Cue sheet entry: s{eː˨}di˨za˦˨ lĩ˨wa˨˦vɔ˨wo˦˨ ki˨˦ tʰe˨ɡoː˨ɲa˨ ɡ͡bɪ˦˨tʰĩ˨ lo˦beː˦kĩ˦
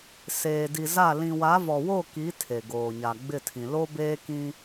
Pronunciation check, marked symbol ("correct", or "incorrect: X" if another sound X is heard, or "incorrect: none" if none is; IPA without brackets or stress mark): correct